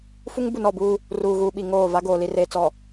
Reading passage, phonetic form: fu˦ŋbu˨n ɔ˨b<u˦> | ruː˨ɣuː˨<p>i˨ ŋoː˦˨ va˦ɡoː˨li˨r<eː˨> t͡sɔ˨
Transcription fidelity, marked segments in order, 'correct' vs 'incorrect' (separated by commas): incorrect, incorrect, correct